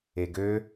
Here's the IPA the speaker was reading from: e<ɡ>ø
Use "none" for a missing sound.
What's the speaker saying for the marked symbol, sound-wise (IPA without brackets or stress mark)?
ɡ